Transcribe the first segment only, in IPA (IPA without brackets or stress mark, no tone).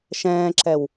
ʃ